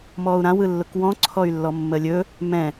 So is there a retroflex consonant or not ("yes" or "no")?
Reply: no